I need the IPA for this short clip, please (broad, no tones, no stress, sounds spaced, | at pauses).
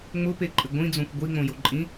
ŋ͡m ʊ p e ǃʼ ɪ ɡʷ ĩ d͡z õ kʷ ɡʷ i ŋ͡m õ j o ǃʼ ĩ